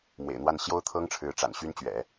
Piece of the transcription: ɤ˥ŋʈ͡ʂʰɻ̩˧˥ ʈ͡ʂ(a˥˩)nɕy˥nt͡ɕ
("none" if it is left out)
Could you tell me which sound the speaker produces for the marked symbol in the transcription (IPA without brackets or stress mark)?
a̰˨˩